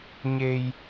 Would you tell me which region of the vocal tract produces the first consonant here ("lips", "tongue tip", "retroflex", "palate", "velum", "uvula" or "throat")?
palate